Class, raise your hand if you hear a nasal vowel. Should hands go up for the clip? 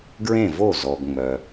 yes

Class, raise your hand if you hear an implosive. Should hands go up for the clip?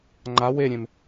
no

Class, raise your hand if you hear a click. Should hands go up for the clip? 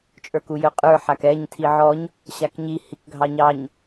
no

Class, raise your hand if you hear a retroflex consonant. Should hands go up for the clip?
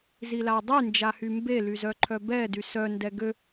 no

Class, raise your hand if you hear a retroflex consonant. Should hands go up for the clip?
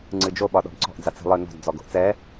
no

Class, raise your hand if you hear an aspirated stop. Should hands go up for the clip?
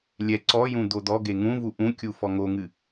no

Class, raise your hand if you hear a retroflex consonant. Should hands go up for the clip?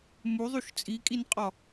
no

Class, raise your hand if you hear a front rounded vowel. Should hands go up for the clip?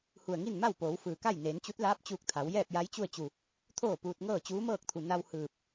no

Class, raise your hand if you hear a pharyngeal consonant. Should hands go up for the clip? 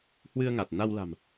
no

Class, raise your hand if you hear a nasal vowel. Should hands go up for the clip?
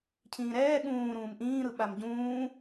yes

